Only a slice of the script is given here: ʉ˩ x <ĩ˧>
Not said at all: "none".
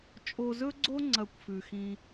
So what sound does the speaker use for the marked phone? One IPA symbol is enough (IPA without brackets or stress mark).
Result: ĩ˧